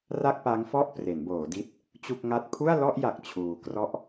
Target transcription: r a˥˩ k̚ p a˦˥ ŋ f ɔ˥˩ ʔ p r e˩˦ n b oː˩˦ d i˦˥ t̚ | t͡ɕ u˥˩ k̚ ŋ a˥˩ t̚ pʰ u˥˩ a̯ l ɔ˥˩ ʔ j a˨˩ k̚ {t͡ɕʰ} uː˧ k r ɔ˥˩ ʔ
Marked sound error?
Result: no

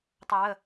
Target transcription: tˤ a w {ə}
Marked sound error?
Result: no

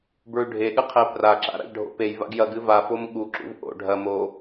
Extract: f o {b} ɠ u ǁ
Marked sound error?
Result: yes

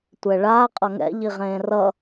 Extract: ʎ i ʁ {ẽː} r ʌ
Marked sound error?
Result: no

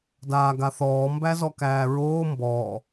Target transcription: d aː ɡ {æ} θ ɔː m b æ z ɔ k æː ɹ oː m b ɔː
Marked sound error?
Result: yes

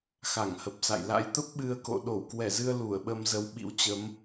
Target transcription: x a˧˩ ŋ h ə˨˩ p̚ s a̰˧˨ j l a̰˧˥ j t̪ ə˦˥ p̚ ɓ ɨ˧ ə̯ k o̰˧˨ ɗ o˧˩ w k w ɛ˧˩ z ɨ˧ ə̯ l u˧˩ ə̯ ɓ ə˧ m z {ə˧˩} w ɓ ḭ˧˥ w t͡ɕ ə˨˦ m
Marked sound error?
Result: yes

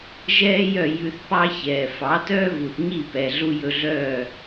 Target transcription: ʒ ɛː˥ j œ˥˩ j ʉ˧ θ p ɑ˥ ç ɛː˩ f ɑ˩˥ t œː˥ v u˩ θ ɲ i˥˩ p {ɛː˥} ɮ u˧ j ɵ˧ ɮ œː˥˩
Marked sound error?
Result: yes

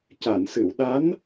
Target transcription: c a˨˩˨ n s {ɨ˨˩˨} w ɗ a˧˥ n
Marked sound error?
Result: no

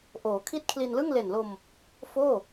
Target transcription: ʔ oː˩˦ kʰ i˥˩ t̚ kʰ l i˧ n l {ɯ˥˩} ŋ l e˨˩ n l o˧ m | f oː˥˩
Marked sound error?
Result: no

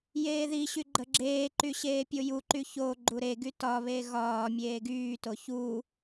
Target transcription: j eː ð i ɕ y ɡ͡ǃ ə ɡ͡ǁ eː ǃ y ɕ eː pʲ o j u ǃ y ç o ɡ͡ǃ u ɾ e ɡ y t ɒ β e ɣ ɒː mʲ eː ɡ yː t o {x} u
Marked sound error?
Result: yes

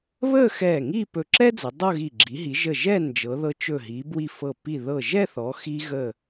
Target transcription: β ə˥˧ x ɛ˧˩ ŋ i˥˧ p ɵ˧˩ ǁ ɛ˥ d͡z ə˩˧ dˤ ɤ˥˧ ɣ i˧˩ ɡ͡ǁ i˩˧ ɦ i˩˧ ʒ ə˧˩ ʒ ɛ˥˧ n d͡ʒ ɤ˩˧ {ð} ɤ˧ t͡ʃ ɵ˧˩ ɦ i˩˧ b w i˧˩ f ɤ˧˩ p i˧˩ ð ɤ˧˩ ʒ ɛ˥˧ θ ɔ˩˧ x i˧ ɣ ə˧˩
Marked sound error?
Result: no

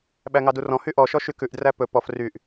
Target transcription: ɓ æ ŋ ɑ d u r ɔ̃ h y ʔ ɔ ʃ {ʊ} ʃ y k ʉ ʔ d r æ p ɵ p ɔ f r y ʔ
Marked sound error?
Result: yes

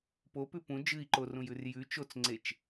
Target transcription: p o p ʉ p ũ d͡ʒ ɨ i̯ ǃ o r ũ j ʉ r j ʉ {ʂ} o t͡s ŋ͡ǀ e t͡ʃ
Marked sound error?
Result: yes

